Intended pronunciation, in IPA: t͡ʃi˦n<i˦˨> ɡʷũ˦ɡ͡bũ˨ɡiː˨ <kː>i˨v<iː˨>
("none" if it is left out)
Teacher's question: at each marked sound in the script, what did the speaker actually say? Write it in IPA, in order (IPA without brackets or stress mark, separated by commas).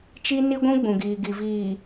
i˦, ɡ, iː˨